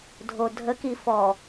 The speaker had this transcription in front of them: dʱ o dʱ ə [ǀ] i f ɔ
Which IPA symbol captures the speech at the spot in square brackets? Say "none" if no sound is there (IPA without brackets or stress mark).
k